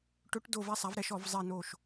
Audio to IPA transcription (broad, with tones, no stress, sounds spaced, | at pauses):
ʈ ɵ˧˥ ʈ d o˦˨ v ɛ˧˥ sˤ a˩˥ v ɾ ɛ˧˥ ʃ ɔ˨˩˦ v zˤ ɛ˦˨ n o˦˨ ʃ